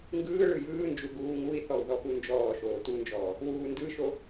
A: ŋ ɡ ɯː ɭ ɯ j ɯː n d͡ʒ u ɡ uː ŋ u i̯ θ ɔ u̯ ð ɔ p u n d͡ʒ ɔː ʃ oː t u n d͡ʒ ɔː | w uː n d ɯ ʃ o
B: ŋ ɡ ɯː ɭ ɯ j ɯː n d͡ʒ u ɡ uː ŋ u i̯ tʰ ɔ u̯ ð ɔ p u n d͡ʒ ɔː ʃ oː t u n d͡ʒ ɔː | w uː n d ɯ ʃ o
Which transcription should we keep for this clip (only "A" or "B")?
A